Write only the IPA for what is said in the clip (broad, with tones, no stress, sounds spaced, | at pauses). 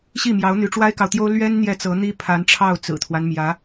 ɕ i˥˩ m j ɑ˧˥ ʊ̯ n̪ y˧˥ ʈ͡ʂ w a˥ ɪ̯ k ɑ˨ ʊ̯ t̪ j o˥ ʊ̯ l ɥ ɛ˥ n n̪ j ɛ˥˩ t͡s ɤ˧˥ n̪ i˥ pʰ a˧˥ n ʈ͡ʂʰ ɑ˥˩ ʊ̯ t͡s ɹ̩˨˩ t̪ʰ w a˦ n m j ä˧˥